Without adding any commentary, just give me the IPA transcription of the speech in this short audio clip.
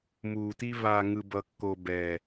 m uː˨ t i˦ β a˨ ŋ ɯ˨ b ʌ˨ kː o˨ b ɛ˨

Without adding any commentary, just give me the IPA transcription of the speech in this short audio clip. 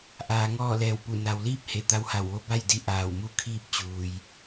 ʔ aː˩˧ ŋ ɔː˥˨ l ɛː˧˩ w p u˧˩ n a˩ w l iː˥˨ p̚ h e˧˩ t̪ a˧˥ w h a˧˩ w ʋ o˧˥ b a˥˨ j d i˧ ʔ aː˧˩ w m u˥˨ kʰ iː˥˨ p̚ t͡ɕ uː˩ j

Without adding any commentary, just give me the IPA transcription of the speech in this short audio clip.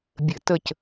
bʲ ɘ˧˩˧ t ə˦˨ c

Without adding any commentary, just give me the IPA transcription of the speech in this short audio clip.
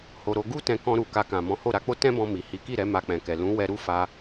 h o˧ ɾ o˧ ɡ u˦ t ɛ̃˧ k ɔ̃˧ ɾ u˨ k a˧ k ã˨ m ɔ̃˨˦ h o˦˨ ɾ a˧ k͡p o˦ t ɛ̃˦ b ɔ̃˧ m i˨ h i˨˦ k i˦˨ ɾ ɛ˨˦ m a˧ k͡p ɛ̃˨ k ɛ˨ l ũ˨˦ w ɛ˧ ɾ u˦ f a˧

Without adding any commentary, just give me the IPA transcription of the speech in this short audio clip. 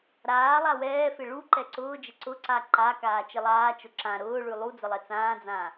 ɾ aː lˠ a w ɛː f ɪ ɭ u ǃ ɛ ǀ ʊː d͡ʒ ɪ ǀ ʊ ǀ a ǃ a k aː t͡ʃ ɪ lˠ aː t͡ʃ ʊ ǁ ã ɾ ʊː ɭ ʉ lˠ u d͡z ə lˠ ɛ t͡s ãː d͡z ã

